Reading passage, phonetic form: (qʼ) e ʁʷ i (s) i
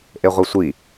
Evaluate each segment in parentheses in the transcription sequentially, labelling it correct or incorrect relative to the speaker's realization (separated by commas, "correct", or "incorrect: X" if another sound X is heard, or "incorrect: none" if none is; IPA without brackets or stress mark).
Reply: incorrect: ʔ, incorrect: sʷ